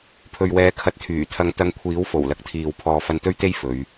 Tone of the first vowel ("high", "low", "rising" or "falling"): low